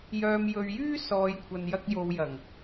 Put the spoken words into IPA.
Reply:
j œː˨ m j ɵ˨ ɥ j yː˥ s ɔː˨ j kʷʰ ɐ˨ n j ɐ˧ k̚ j o˨˧ w j ɐ˨˩ ŋ

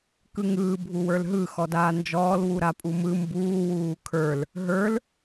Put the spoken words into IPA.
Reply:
k ɯ ŋ ɯː bʱ u w ə˞ l ɦ ɯ x ɔ d aː n d͡ʒ ɔː l w u ɾ a pʼ u m ɯ m b uː w uː kʰ ə˞ l | ɦ ə˞ l

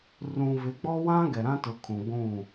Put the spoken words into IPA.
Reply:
r ũ˨ v ɪ˨˦ ɡ͡b ɔ˦ w ã˦ ɡ ɛ˨ ɾ ã˦ t ʊ˨˦ kʰ ũ˨ ɡʷ ũ˦˨

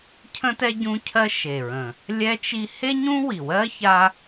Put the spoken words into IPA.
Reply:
cʰ ə̃˥ t ɛ˥ ɟ ũ˥ cʰ ɜ˥ ʃ e˨˩ ɹ ə̃˨˩ | lʲ ɛ˥ t͡ʃ i˥ h e˥ ɲ ũ˥ w i˨˩ w ɜ˥ ç a˥

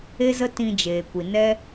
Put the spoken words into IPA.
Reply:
e˦ z ə˦ t ĩ˧ d͡ʒ eː˨ kʷ i˨ n ɛ˦

